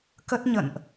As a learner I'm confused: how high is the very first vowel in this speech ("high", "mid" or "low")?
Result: mid